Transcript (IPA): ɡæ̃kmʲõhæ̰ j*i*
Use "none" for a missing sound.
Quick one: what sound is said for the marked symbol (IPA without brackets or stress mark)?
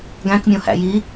i